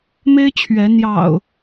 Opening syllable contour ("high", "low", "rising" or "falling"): high